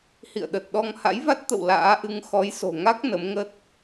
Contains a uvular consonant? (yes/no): no